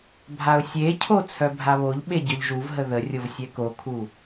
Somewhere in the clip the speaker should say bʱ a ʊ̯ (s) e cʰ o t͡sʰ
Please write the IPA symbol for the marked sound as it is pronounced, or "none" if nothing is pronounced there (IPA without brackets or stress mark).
sʲ